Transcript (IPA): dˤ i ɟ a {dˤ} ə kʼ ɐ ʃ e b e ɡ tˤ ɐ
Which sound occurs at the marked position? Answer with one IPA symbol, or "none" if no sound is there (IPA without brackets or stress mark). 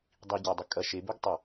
dˤ